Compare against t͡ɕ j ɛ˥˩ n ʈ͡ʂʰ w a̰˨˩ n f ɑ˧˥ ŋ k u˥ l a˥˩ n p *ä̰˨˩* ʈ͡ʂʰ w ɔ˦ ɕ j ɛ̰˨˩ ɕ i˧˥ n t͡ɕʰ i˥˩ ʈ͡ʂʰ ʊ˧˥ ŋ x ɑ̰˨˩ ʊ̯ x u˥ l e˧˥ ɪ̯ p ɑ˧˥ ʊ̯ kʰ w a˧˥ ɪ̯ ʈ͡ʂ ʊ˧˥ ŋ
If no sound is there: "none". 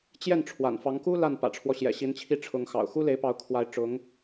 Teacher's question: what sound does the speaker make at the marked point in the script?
ä̰˨˩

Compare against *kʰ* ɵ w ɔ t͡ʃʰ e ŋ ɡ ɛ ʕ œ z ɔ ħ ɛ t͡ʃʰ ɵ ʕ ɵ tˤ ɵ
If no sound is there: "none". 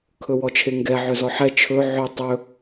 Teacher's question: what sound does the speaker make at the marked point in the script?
kʰ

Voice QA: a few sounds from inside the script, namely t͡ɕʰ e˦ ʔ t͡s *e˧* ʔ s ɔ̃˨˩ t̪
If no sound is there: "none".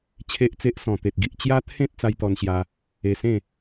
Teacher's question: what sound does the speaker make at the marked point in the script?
e˦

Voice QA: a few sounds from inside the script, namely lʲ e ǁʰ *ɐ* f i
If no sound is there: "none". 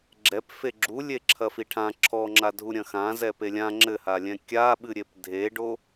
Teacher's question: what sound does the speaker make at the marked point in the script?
ɐ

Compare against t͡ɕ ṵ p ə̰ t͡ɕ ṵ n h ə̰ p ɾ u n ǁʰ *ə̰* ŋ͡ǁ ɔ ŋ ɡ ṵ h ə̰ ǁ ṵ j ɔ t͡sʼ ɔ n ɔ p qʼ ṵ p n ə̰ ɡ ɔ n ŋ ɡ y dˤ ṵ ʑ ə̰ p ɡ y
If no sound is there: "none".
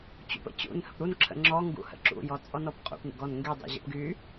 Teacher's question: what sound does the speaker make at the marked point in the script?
ə̰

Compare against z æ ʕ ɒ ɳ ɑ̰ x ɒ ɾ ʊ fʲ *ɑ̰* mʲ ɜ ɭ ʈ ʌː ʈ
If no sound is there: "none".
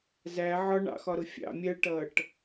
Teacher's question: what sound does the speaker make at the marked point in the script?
ɑ̰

